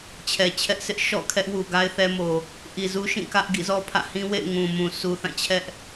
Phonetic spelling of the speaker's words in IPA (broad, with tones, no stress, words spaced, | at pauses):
t͡ɕʰɛ˨t͡ɕʰɛ˦ʔsʰɪ˦ʔ ʃɔ̰˦˨kʰɛ˦ʔwu˨ɡa˦ɪ̯ θɛ˦mo˨ | ʔi˨zu˦ʃĩ˦˨ kä˦ʔ ɡḭ˦˨zɔ˦pʰä̰˦˨ hĩ˦wḛ˦˨ɪ̯ ŋũ˨mũ˨ sʰu˨θã˦˨t͡ɕʰɛ˦ʔ